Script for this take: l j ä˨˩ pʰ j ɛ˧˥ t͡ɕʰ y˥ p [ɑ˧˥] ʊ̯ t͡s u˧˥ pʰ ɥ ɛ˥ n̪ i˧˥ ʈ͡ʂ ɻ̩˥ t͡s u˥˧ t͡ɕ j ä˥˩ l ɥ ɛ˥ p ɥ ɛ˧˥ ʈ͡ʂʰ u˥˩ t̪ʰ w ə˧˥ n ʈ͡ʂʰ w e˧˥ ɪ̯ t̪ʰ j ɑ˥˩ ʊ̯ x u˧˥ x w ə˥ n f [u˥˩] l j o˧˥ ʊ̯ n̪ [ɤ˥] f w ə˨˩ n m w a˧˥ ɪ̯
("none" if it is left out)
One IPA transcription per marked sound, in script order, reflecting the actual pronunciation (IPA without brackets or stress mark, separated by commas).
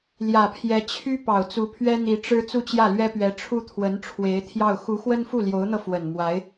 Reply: ɑ˨˩, u˥˩, ɤ˧